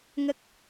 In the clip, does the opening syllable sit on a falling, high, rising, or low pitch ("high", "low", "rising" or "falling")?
low